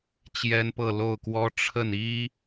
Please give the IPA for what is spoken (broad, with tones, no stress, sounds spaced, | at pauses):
t͡ɕ j ɛ˥ n p ɤ˥˧ l o˥˩ ʊ̯ k w ɔ˥ ʈ͡ʂʰ ə˥˩ n i˥